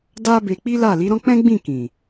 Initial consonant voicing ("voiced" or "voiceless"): voiced